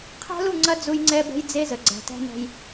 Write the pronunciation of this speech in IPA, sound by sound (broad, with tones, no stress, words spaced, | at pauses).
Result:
qʰæ̤˦lu˦˨ŋ͡ǀɐ˦ d͡zu˦jŋ͡ǀɛ˦bɛ̤˦j d͡ze˦zə˨ ɡ͡ǀæ̤˨tæ̤˦nɛ̤˦j